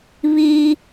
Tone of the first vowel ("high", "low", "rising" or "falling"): high